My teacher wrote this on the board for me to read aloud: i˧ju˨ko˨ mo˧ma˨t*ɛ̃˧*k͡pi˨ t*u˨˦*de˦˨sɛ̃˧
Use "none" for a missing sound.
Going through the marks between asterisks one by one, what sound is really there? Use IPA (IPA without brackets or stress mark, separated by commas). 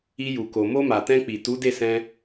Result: ɛ̃˧, u˨˦